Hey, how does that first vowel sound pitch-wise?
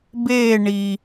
falling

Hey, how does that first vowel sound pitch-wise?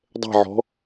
falling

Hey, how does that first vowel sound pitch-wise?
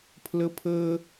high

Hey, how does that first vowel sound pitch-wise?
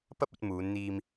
high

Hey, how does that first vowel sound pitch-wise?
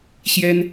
high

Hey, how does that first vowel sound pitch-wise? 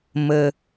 low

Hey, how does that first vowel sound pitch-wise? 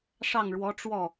falling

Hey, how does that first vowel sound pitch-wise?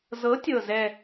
rising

